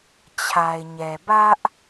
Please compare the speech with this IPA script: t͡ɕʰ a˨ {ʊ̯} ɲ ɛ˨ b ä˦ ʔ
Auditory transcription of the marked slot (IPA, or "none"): ɪ̯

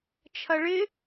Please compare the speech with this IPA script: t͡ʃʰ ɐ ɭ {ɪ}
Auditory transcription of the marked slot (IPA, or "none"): ɪ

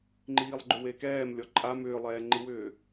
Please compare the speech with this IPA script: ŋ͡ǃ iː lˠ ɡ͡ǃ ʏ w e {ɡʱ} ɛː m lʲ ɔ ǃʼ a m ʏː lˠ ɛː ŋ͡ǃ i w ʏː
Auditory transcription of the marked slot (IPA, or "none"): k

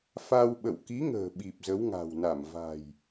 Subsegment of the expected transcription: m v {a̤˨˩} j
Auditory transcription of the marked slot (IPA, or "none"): a̤˨˩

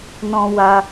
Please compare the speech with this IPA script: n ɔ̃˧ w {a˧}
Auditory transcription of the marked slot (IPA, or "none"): a˧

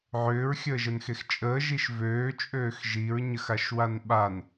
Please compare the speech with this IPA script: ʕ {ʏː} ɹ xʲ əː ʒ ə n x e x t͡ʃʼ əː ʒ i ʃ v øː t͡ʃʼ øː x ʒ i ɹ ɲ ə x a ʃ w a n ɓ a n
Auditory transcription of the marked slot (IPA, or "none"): ʏː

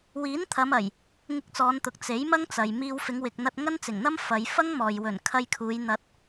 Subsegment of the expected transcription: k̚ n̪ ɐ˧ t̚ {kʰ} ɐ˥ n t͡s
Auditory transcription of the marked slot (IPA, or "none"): ŋ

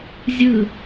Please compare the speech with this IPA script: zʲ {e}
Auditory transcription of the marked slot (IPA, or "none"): ɨ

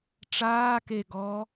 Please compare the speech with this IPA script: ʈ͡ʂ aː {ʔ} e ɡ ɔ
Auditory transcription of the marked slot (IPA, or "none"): k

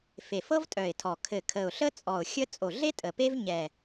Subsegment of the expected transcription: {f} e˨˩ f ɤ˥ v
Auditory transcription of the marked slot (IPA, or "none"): f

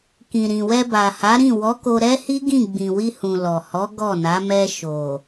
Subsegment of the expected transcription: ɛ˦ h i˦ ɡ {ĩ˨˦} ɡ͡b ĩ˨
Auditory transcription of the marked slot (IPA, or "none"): ĩ˦˨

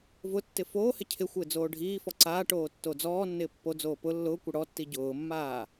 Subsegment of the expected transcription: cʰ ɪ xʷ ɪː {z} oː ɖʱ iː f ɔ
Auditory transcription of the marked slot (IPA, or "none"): d͡z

